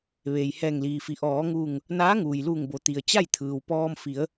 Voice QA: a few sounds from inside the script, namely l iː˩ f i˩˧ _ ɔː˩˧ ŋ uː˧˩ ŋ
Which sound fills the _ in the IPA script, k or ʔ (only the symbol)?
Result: ʔ